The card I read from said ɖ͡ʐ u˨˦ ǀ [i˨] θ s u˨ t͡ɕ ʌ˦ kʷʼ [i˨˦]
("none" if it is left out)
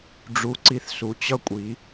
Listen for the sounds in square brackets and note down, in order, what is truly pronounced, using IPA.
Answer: i˨, i˨˦

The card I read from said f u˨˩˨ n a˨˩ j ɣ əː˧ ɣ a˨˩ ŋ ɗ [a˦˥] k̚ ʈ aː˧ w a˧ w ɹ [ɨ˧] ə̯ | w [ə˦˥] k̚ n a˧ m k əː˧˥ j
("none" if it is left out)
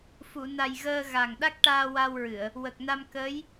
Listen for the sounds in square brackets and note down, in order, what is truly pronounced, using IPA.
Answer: a˦˥, ɨ˨˩˨, ə˨˩

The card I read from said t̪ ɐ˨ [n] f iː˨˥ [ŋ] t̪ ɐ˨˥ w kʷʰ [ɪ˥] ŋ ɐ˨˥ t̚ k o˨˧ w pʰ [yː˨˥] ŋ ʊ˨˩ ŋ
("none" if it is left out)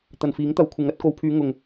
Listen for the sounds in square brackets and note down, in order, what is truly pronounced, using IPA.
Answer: n, ŋ, ɪ˨˧, yː˨˧

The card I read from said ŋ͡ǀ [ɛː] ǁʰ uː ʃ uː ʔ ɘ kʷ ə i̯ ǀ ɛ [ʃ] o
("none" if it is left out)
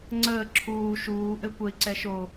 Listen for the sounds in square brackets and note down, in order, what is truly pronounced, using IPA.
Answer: əː, ʃ

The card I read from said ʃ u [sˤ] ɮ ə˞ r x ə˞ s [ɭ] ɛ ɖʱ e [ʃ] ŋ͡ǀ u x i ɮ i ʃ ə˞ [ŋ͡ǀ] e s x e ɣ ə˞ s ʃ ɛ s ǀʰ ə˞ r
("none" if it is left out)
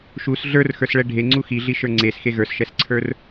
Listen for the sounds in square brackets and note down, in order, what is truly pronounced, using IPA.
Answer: s, ɭ, none, ŋ͡ǀ

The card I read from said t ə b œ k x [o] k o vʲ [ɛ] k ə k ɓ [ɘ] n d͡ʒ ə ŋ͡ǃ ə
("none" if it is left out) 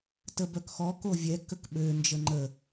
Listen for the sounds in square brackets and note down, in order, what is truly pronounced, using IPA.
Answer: ɔ, ɛ, ø

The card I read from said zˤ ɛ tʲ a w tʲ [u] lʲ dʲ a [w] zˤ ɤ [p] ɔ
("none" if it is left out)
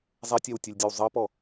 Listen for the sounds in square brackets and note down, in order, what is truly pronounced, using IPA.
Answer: ɯ, w, p

